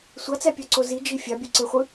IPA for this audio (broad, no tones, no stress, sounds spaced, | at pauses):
sʷ ɑ t͡s æ pʲ ɑ ǀ o z i d͡ʒ i fʲ ɑ bʲ u ǀ e χʷ ɯ